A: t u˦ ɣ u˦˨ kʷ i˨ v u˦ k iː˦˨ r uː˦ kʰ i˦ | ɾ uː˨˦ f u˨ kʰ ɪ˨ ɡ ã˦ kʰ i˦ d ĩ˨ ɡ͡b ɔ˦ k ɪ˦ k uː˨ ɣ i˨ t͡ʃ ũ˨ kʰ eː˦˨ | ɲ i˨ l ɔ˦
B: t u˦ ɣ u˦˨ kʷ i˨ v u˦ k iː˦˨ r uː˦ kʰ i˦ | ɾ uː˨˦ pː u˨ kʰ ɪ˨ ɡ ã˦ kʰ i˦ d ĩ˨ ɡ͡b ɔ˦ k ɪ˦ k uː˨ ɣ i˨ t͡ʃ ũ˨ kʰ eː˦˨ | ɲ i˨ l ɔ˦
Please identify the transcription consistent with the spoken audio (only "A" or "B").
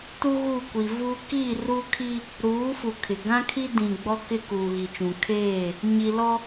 A